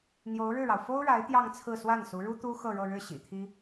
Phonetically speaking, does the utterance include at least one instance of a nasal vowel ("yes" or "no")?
no